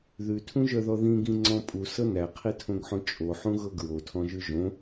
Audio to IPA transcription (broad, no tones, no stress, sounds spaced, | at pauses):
ð ʉ tʰ ũ ʒ œ ð ɔ ð ĩ ɡ ĩ ŋ͡ǀ ɔ̃ pʼ u s ɤ n æ qʰ i tʰ õ ɡ ħ õ t͡ʃʼ o ħ ũ ɣ ɤ ɡ ɹ o tʰ ɔ̃ ʒ ʉ ʒ õ